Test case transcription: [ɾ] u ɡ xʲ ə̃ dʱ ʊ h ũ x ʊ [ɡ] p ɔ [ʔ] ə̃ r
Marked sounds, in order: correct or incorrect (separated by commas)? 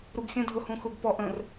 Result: correct, correct, correct